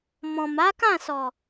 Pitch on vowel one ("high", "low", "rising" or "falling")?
low